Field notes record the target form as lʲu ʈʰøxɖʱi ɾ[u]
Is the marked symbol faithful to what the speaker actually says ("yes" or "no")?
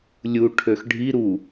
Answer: yes